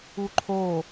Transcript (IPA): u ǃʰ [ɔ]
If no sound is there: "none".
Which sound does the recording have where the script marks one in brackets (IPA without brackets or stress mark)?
o